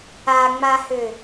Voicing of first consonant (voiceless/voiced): voiced